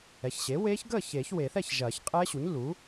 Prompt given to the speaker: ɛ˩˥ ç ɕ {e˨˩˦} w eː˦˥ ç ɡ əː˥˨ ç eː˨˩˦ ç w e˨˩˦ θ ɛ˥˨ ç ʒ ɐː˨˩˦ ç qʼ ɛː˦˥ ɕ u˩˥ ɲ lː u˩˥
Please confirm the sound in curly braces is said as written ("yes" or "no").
no